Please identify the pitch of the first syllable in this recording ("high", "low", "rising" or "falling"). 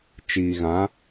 low